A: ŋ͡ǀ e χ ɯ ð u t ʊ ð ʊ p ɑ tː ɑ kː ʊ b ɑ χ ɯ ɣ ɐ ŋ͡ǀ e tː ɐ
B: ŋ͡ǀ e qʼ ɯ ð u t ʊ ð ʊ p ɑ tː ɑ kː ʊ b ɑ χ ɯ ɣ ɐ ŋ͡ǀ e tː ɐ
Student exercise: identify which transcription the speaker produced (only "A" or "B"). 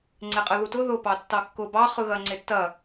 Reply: B